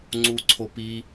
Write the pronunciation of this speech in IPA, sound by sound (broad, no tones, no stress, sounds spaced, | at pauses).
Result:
ŋ͡ǀ u ǀʰ o p i